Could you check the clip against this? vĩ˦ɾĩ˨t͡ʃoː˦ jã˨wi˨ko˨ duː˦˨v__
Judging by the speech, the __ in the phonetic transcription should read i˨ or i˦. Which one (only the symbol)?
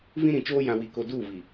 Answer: i˨